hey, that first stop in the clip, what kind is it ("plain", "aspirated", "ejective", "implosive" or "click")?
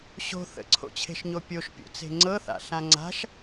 click